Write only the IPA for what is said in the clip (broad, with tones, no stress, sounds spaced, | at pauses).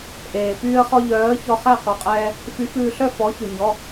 ʔ eː˩ p yː˧ ə̯ χ ɔ˧ ʎ œː˨˥ ə̯ ç ɔ˧ χ æ˥˨ q u˩ qʼ ɛː˧ | f y˨˥ f ʉː˧ ɬ œ˥˨ f ɔ˨˥ ç ʉ˩ ɲ ɔ˩˧˩